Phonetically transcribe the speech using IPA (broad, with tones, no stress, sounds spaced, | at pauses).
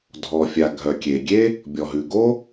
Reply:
dʱ ɔ˩ fʲ a˩ ɡʱ œ˩ kʲ e˩ ɡʲ e˥ | bʲ ɔ˩ ɦ ʉ˩ ɡ o˥